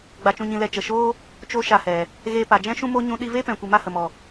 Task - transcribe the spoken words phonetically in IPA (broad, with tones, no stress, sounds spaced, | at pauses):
ɡ͡b a˧ t͡ʃ ũ˧ ɲ ĩ˧ l ɛ˧ t͡ʃ ə˨ ʃ oː˦ | t͡ʃ o˧ ʃ a˧ h ɛ˨ | ɣ eː˧ p a˨ d͡ʒ ɛ̃˦ ʃ ũ˦ m o˦ ɲ ũ˧ ɗ i˧ v eː˦ p ɛ̃˨ kʷ i˨ m a˧ h ə˨ m ɔ˨